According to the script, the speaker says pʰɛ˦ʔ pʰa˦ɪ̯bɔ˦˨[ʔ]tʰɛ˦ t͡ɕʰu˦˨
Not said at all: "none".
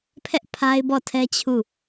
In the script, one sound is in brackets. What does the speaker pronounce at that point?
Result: none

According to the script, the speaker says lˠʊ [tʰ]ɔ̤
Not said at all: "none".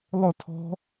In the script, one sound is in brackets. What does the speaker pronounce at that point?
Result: tʰ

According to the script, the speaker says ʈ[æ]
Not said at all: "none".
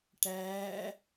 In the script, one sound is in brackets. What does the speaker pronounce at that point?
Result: æ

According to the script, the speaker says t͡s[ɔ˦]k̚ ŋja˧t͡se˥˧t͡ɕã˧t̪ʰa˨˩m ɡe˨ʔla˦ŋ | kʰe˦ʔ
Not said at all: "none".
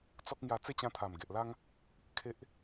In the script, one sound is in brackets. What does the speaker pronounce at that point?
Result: ɔ˦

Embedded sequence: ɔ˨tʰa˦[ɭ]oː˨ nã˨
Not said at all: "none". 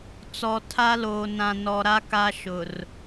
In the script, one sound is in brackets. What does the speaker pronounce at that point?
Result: l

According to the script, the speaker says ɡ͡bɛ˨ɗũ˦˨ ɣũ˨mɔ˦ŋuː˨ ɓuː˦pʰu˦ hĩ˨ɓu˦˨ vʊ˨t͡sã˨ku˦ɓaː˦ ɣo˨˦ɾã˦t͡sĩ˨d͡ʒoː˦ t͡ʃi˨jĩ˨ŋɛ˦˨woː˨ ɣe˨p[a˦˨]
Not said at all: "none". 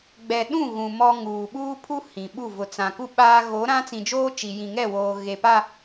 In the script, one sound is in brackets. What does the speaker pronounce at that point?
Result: a˦˨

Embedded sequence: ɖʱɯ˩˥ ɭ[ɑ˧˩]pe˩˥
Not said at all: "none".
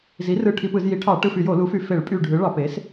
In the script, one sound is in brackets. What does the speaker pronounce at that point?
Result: ɑ˧˩˧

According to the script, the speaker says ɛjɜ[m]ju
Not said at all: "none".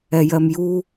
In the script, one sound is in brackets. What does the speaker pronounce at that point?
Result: m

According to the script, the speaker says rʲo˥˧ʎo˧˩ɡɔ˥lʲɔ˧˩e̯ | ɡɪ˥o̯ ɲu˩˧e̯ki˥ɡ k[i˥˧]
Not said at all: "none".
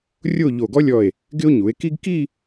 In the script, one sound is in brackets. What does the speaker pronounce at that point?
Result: i˥˧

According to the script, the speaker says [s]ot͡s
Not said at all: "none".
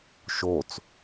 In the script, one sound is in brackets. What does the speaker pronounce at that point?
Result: ʃ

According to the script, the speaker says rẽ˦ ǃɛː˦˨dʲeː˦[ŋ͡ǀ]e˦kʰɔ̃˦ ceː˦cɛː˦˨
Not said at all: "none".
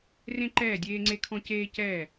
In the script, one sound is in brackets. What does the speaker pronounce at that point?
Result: ŋ͡ǀ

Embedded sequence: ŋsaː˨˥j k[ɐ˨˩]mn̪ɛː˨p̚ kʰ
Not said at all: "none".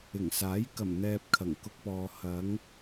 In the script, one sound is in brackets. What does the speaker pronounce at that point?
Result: ɐ˨˩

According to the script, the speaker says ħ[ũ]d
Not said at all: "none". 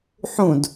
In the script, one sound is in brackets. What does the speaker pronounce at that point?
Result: ũ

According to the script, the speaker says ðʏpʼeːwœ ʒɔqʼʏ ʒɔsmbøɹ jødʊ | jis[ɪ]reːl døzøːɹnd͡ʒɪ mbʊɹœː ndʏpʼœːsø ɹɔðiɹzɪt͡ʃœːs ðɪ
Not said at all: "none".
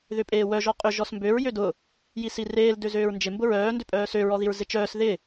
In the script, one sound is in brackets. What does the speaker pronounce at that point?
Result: i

